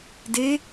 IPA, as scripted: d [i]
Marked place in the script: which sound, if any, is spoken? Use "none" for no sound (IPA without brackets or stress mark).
e